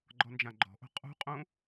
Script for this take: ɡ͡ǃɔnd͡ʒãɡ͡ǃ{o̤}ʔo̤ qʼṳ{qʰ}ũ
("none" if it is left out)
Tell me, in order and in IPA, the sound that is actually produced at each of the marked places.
ɔ̤, qʼ

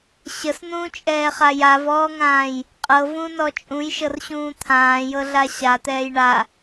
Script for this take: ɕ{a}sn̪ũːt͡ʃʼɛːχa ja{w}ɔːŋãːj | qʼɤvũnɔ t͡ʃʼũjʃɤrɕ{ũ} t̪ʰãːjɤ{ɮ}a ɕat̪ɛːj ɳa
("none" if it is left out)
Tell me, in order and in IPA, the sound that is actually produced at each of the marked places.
ə, v, ũː, ɮ

